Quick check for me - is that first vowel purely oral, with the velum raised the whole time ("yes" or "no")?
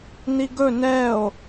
yes